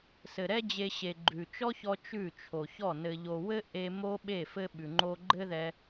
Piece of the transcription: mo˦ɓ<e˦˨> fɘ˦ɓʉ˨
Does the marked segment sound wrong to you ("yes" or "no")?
no